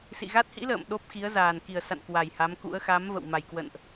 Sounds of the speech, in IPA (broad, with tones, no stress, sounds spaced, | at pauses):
s ḭ˧˨ ɣ a˦˥ t̚ h ḭ˧˥ l ə̰ː˧˨ m ɗ o˦˥ p̚ x i˨˦ ə̯ z aː˨˩ n k i˨˩ ə̯ s a̰˧˨ n k w a˨˩ j h a˨˦ m k ṵ˧˥ ə̯ x a˨˦ m v ə̰˧˨ w m a˨˩ j k w ə̰˧˨ n ʔ